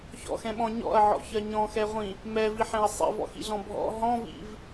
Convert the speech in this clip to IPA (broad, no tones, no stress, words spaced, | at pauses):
çɔ̰xɛ̃ɓɔ̃ ɲɔ̰ɐ̯ʕɔ̰çɜ ɲɔ̃xɛʁʷĩ | mɛviħɛ̃ɐ̯ sˤḭvɔ̰xḭɮɔ̃ bʱɔ̰ ɦɔ̃vḭv